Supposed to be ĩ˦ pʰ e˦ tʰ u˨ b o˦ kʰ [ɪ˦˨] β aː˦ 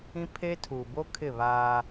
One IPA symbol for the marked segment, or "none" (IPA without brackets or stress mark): ɪ˦˨